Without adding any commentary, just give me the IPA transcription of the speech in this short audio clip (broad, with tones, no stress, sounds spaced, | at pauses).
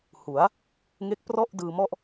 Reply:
h u˩˦ a̯ | ŋ e˦˥ k̚ p r ɔ˥˩ ʔ d ɯː˧ m ɔ˥˩ ʔ